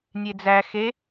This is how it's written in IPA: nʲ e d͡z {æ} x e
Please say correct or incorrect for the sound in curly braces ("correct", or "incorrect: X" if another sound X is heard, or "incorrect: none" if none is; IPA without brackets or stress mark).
correct